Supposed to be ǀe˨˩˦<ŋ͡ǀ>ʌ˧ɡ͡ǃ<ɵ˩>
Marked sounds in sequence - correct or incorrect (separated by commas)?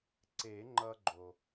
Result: incorrect, incorrect